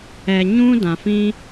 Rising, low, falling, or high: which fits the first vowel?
low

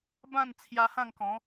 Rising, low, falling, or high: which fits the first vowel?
falling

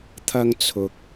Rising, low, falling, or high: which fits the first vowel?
high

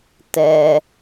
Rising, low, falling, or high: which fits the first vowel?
low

